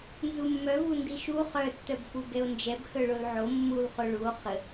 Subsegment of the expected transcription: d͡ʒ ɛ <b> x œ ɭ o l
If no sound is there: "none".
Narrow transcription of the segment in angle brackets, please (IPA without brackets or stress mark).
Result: b